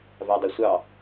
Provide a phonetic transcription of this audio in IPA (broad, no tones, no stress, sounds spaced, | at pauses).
v a dˤ ɐ sʷ ɑ